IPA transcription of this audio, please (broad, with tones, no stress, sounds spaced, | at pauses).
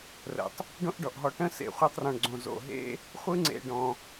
r ə̰˩ tˤ | ɖ õ˥ ʔ ɖ ɔ˩ ʔ ɦ ɔ˨ ʈ ə̃˥ s ḛ˩ χʷ e˦ tˤ r ɔ̃˩ ɳ ɡ͡ǀ õ˩ z o̰˩ ɦ ḛ˥ | χʷ ɯ˥ ŋ͡ǀ ḛ˨ ɖ ɔ̃˩